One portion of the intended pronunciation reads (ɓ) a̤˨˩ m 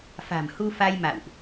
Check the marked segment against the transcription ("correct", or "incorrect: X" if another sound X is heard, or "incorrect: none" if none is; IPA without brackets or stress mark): incorrect: f